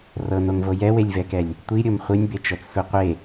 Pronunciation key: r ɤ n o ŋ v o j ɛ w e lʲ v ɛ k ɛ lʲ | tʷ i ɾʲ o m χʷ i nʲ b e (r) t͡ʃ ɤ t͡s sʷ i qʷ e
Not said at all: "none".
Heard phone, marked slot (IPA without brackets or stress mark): none